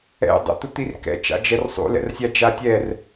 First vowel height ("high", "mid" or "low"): mid